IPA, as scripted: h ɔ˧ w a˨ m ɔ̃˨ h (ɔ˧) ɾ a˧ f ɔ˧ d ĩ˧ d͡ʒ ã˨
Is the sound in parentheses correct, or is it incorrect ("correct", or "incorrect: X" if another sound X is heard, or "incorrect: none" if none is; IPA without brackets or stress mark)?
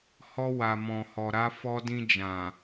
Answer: incorrect: ɔ˨